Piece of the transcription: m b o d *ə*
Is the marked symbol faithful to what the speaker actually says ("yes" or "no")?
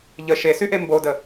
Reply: yes